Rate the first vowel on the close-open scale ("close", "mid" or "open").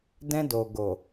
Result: mid